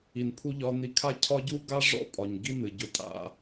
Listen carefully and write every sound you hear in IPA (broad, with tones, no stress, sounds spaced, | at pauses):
i˨ n pʰ u˧ ʎ ɒ˧ n i˧ kʰ a˦ cʰ ɒ˦ ɟ u˦ ɡ a˦ ʐ ɔ̰˦ pʼ ɒ˨ ɲ ɡ i˧ n ɨ˨ ɟ ʊ˧ tʼ a̰˧